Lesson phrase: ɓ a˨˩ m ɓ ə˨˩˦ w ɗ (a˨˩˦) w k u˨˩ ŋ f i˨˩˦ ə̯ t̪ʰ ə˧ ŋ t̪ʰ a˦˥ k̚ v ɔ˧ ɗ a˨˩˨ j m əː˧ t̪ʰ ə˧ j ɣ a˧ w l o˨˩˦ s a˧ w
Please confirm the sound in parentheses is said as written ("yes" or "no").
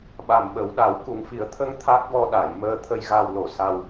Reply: yes